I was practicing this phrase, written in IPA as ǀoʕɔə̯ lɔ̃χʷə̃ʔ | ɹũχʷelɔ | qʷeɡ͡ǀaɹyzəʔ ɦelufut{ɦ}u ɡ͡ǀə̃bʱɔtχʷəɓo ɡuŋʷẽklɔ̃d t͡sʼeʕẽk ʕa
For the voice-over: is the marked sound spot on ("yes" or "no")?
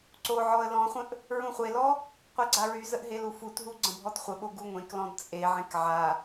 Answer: yes